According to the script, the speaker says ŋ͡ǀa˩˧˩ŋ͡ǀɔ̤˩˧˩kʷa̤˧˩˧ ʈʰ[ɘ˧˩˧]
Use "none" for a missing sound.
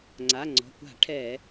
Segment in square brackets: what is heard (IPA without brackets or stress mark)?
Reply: ɛ˧˩˧